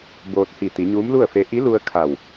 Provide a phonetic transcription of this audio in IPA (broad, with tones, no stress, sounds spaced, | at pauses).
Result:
b oː˧ t̚ h i˧˩ t̪ i˩˧ ɲ uː˧˥ m l u˥˨ ə̯ f e˧˥ ʔ i˧˥ l u˧ ə̯ kʰ a˧˩ w